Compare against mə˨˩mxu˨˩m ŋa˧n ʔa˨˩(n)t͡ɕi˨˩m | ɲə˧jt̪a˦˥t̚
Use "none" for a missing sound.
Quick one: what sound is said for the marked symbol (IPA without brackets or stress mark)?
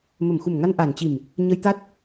n